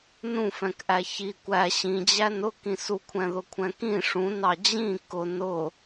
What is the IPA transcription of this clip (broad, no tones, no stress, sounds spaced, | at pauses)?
n ũ f ɛ̃ k ʔ æ ç i kʷ æ ɕ ĩ d͡ʑ æ n ʊ k ĩ s u kʷʰ ɛ̃ ð ʊ kʷʰ ɛ̃ k ĩ ʂ ũ n ɑ d͡ʑ ĩ k ʊ n ʊ